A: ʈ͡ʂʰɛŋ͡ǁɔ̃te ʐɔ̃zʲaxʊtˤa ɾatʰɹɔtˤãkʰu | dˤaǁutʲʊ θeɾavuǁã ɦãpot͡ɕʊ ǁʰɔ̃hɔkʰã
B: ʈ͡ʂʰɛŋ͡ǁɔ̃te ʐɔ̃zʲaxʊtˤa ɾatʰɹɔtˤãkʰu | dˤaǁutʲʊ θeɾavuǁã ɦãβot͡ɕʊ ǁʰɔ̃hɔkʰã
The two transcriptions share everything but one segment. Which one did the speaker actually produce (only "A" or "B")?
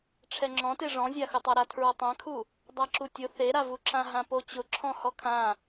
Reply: A